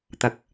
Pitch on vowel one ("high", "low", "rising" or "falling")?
low